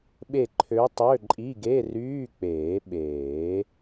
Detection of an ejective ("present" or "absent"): present